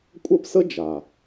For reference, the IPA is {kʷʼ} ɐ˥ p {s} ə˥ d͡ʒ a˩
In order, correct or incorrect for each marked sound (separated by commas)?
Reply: correct, correct